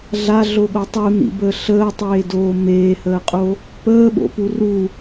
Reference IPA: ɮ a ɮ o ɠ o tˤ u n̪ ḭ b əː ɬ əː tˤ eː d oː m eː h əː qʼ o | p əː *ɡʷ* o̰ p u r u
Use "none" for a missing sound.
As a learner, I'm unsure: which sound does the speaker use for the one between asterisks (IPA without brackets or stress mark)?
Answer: ɓ